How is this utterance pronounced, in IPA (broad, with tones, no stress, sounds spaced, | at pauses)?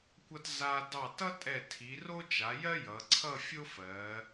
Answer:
kʷ ʌ˧ t z a˧ d ɑ˧˩ t ʌ˥ tʼ ɛ˧˩ tʰ i˩˧ r o˥ t͡ʃ a˩˧ j ɜ˥ j ʌ˩˧ ǀʰ ʌ˥˧ fʲ o˥ f ɜ˩˧